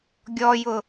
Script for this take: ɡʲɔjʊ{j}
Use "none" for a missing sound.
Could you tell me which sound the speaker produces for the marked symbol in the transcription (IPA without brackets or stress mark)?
none